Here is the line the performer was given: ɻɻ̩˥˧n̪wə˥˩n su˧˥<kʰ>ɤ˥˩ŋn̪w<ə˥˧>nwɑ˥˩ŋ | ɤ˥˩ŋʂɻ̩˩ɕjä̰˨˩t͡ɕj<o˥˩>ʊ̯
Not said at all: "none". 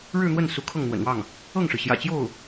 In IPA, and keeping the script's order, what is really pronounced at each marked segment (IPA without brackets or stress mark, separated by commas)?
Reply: kʰ, ə̰˨˩, o˥˩